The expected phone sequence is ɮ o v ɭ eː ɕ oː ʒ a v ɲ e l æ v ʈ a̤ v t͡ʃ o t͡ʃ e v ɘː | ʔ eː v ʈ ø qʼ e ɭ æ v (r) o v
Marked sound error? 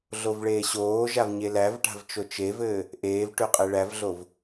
yes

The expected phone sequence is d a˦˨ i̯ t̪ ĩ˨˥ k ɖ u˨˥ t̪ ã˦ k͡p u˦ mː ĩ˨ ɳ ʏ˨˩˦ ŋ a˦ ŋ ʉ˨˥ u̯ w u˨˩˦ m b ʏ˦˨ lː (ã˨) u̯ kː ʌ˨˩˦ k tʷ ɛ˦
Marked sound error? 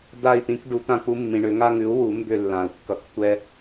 yes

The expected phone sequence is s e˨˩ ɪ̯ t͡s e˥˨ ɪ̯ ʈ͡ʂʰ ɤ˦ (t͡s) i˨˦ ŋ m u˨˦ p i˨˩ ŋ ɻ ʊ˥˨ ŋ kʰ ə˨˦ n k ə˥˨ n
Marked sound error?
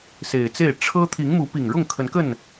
yes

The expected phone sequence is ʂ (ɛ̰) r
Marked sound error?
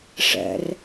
no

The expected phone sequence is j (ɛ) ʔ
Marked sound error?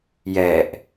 no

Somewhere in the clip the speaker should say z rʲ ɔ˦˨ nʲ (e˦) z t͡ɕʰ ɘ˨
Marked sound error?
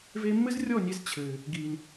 no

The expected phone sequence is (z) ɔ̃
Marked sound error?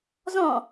no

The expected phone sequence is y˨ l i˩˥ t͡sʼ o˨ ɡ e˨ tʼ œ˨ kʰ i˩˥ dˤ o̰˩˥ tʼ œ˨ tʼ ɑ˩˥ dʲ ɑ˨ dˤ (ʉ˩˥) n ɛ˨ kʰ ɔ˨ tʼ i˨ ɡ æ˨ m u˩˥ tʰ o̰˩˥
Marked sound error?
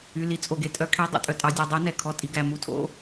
no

